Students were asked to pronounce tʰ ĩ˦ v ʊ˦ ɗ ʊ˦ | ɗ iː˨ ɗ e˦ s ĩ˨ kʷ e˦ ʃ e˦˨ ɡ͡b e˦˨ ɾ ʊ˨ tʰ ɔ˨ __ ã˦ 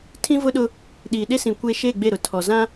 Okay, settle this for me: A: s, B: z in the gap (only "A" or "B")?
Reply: B